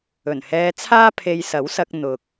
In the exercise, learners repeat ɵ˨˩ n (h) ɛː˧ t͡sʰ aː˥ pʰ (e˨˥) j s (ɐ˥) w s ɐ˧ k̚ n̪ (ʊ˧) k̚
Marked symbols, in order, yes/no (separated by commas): yes, no, no, no